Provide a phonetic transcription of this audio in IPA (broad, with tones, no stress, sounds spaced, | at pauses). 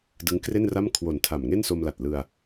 d ɯ˦˥ ŋ k r e˥˩ n r a˥˩ m kʰ w o˨˩ n tʰ a˨˩ m ŋ e˥˩ n s o˧ m l a˨˩ t̚ l ɯ˧ a̯